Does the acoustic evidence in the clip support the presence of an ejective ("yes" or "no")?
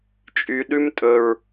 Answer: yes